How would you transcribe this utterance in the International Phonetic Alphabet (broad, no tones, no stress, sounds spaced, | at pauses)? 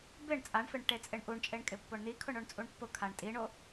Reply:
b ɪ ɳ t͡sʼ a ɳ f ɪ ɳ ʈ e t͡sʼ ɪ ɳ ʔ u ɳ t͡ʃʼ e ɳ kʼ ɪ pː o ɳ n̪ i kʰ ʊ ɳ o ɳ t͡sʼ u ɳ pː ʊ kʰ a ɳ tʼ i ɳ o